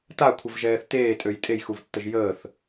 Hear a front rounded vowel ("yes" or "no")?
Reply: yes